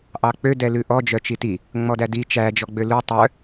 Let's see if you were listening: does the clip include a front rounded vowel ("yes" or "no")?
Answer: yes